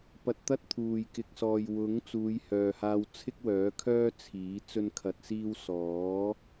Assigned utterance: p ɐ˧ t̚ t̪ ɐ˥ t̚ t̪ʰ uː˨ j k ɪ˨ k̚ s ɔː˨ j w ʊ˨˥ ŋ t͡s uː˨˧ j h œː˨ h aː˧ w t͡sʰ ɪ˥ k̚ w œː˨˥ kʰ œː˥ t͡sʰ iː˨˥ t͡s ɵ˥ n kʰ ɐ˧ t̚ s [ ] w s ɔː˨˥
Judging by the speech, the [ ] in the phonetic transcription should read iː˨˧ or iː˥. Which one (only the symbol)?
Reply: iː˥